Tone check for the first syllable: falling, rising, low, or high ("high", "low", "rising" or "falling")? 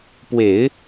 low